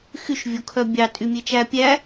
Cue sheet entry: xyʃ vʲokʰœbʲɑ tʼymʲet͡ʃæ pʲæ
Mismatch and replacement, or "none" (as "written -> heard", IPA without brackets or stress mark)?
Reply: none